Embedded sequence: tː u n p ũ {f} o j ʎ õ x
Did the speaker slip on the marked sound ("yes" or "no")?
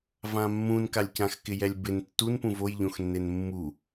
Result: yes